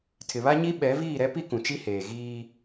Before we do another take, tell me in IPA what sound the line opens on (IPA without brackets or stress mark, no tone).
tʰ